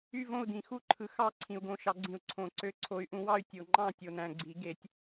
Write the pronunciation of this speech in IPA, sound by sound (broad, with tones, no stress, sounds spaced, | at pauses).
y˥˨ v õ˥˨ u̯ d ĩ˨ x u˦˥ ǃʰ ɯ˨ x ɑ˦˥ ǀʰ ĩ˨ u̯ ɡ õ˨˦ ʃ ɑ˨˦ ɡ͡ǀ ĩ˨˩˦ u̯ ǀʰ õ˨˩˦ ǀ ø˧˥˧ ǀʰ o˨˦ y̯ ʔ ũ˨˦ w ɑ˥˨ y̯ tʲ o˨ ŋ͡ǃ ɑ̃˥˨ tʲ o˨ n æ̃˨ ɡ͡ǀ i˨˩˦ ɡ e˨˩˦ tʲ